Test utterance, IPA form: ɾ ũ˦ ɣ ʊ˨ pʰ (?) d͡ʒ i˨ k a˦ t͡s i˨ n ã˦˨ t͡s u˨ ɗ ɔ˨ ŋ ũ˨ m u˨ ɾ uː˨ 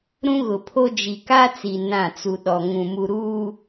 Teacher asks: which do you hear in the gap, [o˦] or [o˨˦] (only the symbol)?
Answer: o˦